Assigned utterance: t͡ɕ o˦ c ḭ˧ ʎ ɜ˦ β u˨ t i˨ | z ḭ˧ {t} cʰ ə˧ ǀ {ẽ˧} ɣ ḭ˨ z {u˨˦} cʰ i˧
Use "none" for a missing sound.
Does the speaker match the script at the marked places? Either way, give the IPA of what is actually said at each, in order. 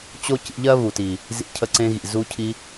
none, ẽ˧, u˧

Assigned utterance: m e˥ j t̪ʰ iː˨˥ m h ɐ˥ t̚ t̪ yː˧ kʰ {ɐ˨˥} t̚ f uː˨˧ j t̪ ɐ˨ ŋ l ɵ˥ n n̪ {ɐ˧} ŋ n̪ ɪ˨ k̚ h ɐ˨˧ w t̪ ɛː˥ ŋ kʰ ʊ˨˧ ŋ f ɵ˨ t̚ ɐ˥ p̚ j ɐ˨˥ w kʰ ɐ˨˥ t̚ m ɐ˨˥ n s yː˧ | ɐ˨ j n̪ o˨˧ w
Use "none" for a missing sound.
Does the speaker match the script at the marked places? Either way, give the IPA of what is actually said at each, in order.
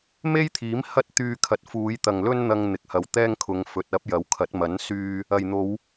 ɐ˨˥, ɐ˧

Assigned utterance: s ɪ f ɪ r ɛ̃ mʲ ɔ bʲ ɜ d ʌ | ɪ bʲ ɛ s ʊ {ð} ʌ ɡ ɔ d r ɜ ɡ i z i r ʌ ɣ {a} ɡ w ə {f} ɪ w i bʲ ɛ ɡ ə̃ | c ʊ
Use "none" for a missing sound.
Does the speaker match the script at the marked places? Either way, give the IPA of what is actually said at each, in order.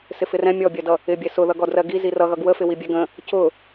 ð, ʌ, f

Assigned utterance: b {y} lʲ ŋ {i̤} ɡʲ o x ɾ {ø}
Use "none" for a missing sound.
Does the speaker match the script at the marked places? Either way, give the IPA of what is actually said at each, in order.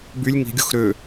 y, i̤, ø

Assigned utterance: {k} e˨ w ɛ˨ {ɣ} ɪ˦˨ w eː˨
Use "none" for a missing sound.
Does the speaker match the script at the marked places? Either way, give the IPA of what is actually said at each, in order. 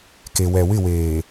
k, w

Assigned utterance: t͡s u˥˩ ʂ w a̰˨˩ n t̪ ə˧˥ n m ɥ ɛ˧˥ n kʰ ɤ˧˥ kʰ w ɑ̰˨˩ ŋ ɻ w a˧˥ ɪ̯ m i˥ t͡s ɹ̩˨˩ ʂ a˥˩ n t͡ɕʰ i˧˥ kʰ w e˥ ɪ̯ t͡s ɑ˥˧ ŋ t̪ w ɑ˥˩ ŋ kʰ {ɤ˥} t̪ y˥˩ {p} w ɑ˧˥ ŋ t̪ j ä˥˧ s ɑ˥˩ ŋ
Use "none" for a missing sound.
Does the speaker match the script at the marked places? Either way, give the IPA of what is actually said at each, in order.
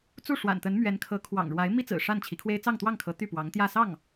ɤ˧˥, p

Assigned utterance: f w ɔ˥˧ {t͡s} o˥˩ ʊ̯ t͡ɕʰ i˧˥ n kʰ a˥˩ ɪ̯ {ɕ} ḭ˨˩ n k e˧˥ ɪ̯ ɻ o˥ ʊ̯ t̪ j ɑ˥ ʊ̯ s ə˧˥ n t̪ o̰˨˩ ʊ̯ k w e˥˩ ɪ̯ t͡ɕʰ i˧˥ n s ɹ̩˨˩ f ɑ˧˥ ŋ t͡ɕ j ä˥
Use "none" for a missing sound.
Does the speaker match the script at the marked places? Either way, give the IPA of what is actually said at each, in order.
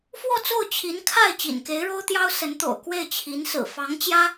t͡s, t͡ɕ

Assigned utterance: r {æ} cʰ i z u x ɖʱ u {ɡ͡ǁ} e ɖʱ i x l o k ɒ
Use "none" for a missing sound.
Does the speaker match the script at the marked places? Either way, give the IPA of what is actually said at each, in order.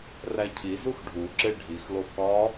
æ, ǁ

